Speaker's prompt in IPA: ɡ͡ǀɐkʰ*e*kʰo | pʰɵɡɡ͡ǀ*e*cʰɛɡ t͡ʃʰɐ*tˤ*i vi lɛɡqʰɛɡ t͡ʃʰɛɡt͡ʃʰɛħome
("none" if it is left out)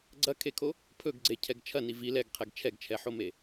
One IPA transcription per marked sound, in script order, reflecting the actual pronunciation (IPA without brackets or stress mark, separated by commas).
e, e, n